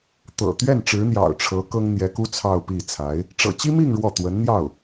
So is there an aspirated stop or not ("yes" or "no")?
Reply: yes